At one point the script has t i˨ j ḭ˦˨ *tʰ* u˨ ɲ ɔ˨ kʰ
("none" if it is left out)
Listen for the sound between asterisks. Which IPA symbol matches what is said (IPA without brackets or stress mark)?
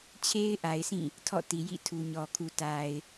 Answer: tʰ